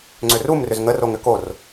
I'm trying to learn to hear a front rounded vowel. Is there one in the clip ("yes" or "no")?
yes